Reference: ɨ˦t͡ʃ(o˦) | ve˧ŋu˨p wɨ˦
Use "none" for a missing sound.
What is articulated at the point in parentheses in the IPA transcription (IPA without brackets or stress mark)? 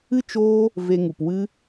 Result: oː˦